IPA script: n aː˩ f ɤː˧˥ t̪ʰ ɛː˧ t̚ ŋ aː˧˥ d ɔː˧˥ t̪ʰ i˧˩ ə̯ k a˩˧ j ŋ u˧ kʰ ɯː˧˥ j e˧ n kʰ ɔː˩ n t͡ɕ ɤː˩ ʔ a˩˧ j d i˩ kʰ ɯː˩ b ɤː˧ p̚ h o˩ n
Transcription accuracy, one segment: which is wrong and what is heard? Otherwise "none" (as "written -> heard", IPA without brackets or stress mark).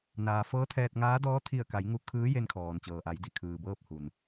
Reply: o˩ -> u˩